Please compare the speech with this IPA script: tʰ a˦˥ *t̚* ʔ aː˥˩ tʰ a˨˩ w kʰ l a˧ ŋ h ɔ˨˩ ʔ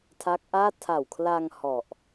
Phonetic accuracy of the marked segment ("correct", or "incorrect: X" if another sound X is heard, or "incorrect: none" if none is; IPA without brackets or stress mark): incorrect: k̚